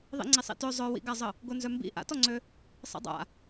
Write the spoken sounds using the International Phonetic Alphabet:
ðˤḭŋ͡ǀisˤḭtø zˤœwḭɡazˤə | ɡonzœmbḭ ʔa̰tɔŋ͡ǀø | sˤḭdˤa̰

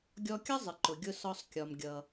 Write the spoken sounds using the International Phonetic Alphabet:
ɡʲɔ˧kʲʌ˥ zˤɪ˩ǃʊ˩ɡʲʊ˧ sɔ˧sˤ kʲɒ˩m ɡʲʌ˩

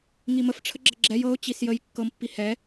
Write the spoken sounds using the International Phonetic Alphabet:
ŋiməfʈ͡ʂʰə ɡ͡ǁəɡ͡ǁɛj ɤʊ̯ t͡ɕisjəj kːɤmpːi hɛ

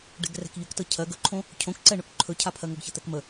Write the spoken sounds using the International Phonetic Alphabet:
ɖɛ̤ɡrɛ̤kʎɵktɤ cʰɜɡ ɵǃʰõ | cʰõkǀɛ ɳɵkǃʰɵcʰapʰɜ ŋɜɡçɤt̪ɛkmə

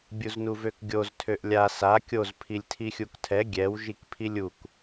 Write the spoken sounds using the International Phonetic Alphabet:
bʲuznuvøkɡʲoz tʰøʔlʲa sa kʲoz pʰilʲtʰixʲuktʰɛ ɡʲɛw ʒikpʰilʲuk

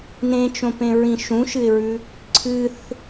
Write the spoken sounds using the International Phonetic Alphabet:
nẽt͡ʃõpẽɹĩ ʃũʃɨɪ̯ɹʉ | ǀʰɨθ

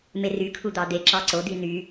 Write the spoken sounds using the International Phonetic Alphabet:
merykʰu d̪ɑd̪eǁɑ ǀod̪i n̪y

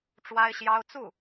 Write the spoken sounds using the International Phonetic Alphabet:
ʈ͡ʂwa˥ɪ̯ɕjɑ˥ʊ̯ t͡su˥˩

